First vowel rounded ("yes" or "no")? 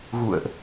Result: yes